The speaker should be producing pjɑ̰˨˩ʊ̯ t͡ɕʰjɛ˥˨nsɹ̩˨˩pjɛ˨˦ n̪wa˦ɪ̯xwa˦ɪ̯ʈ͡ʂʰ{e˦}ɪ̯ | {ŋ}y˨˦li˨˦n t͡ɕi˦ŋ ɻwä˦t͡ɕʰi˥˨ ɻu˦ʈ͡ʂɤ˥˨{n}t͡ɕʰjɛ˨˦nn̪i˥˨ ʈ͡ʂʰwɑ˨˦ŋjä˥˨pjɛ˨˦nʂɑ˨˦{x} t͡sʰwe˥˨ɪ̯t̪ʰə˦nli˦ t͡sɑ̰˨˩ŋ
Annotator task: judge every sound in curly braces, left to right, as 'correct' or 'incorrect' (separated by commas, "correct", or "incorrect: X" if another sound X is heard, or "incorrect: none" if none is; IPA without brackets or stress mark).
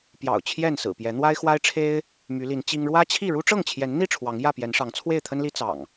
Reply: correct, incorrect: m, incorrect: ŋ, incorrect: ŋ